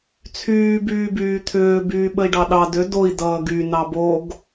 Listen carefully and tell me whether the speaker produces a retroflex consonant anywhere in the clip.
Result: yes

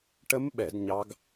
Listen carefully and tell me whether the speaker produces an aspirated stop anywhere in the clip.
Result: no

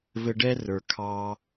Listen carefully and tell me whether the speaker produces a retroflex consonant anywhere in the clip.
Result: yes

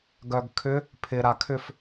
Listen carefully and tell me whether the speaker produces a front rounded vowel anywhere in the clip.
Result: yes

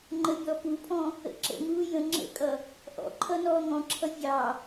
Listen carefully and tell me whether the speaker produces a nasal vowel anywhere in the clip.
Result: yes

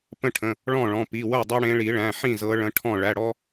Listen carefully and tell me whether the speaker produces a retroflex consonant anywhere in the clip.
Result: yes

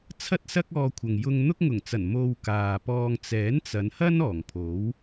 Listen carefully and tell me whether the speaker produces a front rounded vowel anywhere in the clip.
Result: no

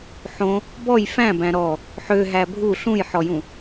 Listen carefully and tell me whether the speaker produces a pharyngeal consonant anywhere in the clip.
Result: yes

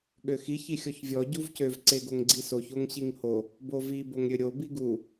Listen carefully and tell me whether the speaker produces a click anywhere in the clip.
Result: yes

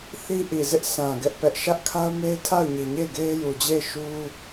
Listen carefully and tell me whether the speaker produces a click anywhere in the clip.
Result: no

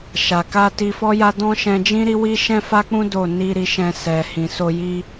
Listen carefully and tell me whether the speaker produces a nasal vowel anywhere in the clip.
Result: yes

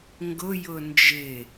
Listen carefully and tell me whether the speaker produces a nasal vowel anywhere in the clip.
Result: no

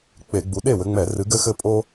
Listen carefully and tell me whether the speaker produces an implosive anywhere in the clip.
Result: yes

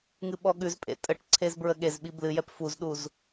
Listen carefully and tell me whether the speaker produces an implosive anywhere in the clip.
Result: yes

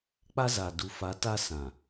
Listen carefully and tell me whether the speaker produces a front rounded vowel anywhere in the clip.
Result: no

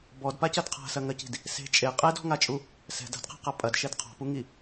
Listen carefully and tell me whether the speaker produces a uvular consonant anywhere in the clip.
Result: yes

